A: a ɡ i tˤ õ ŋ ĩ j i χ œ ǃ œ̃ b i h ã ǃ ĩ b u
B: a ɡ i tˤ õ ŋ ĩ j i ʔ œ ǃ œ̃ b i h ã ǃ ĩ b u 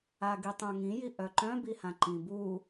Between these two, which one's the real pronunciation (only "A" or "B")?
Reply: B